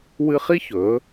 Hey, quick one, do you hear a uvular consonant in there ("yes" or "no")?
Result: yes